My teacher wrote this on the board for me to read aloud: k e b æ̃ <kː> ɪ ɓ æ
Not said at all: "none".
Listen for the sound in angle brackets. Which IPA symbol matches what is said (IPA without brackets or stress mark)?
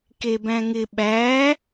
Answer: ŋ